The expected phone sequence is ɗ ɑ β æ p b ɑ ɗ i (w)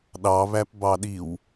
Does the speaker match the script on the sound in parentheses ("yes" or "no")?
yes